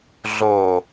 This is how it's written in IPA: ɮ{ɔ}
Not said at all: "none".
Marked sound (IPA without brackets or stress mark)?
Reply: o